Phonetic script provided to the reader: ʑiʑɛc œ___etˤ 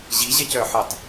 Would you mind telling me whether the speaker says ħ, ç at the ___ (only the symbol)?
ħ